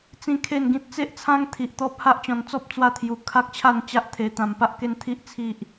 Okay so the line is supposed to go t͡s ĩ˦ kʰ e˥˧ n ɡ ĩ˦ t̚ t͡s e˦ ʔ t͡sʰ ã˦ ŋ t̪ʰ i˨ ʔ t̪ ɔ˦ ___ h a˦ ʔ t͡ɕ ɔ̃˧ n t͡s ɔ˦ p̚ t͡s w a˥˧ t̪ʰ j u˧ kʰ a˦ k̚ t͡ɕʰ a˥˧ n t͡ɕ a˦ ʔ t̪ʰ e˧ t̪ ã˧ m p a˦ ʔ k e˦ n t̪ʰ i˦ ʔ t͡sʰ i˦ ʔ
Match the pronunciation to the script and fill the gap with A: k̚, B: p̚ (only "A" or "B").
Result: B